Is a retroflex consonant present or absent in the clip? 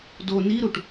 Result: present